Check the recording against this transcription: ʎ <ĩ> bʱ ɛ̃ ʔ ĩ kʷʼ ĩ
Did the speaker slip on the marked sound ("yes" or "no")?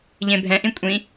yes